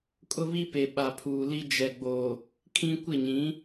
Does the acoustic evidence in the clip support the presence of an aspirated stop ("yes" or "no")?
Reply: yes